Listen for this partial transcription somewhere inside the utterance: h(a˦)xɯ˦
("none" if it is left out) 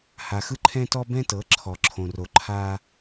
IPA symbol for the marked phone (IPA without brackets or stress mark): a˨